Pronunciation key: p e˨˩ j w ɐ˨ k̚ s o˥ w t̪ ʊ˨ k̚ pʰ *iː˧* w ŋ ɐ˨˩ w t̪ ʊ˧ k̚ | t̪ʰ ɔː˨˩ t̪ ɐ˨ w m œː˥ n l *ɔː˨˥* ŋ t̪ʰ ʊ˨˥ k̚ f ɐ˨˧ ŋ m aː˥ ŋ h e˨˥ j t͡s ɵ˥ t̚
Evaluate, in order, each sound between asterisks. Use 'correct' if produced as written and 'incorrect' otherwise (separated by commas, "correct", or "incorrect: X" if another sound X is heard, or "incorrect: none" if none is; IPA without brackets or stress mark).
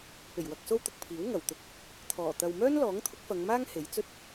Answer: incorrect: iː˨˥, correct